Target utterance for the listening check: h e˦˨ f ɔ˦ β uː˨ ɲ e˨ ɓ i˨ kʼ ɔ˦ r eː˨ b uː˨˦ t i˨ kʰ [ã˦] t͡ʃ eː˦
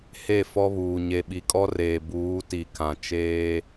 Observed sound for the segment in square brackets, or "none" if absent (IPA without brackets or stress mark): ã˨